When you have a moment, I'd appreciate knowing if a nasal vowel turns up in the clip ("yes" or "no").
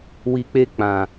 yes